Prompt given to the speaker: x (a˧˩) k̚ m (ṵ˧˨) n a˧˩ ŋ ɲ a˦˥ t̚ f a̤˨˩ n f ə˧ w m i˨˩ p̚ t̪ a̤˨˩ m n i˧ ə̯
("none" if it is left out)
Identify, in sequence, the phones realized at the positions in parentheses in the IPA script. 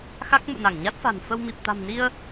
a˦˥, ṵ˧˨

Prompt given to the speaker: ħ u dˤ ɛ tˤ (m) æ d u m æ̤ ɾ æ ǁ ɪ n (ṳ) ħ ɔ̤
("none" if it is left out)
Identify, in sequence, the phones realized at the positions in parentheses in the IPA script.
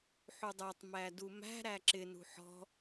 m, ṳ

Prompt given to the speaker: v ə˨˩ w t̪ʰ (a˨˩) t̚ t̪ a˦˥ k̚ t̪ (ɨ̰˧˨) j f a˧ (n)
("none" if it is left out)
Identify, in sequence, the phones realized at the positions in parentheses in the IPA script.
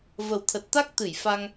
ə˨˩, ɨ˧˩, ŋ

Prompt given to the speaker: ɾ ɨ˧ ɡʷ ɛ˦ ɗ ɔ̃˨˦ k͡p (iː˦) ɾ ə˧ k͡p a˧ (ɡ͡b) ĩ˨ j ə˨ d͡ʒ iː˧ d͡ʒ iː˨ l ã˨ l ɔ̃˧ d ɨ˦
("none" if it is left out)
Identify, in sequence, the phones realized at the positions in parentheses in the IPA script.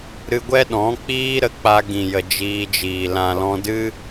iː˦, ɡ

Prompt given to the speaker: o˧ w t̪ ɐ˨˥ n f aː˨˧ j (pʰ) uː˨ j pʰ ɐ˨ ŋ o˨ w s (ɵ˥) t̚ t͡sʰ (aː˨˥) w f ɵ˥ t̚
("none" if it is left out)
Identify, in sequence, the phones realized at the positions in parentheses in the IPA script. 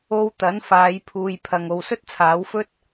pʰ, ɵ˥, aː˨˥

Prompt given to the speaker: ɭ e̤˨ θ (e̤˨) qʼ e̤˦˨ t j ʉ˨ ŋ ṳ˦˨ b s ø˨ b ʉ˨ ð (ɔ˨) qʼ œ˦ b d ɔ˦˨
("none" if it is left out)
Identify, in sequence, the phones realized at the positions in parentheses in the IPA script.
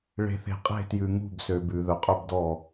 e̤˨, ɵ˨

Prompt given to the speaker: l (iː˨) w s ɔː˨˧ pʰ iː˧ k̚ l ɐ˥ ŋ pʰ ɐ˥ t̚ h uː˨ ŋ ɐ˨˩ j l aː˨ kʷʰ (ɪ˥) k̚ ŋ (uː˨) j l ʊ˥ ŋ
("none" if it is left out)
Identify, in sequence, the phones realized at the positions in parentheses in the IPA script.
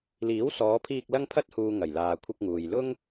iː˨˥, ɪ˧, uː˨

